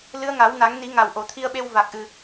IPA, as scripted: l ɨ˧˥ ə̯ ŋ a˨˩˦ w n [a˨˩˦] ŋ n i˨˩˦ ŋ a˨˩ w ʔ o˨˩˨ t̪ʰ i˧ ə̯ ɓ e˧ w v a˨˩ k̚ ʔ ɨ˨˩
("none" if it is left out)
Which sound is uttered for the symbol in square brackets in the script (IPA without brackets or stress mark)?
a˨˩˦